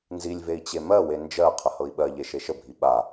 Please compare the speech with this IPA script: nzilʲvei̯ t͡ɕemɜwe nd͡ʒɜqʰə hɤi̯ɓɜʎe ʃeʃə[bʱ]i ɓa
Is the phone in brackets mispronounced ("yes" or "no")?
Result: no